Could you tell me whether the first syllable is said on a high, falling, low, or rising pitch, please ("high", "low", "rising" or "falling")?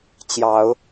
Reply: rising